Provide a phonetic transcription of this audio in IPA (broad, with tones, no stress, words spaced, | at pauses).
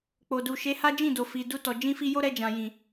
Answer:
k͡po˨du˨ ʃe˨˦ha˦ d͡ʒĩ˦˨do˨ fi˨ du˧tɔ˨ d͡ʒĩ˧fi˧ jo˦ɾɛ˧d͡ʒã˨jĩ˨